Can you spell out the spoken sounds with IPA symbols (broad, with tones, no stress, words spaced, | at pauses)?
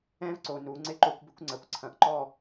ɛ̃˦v ǀo˨nu˨˦ ŋ͡ǀɪ˦ǃo˦kʷbɪ˦kʷ ŋ͡ǀɐ˨kʷǀʰɐ̃˨ʔǃɔ˦˨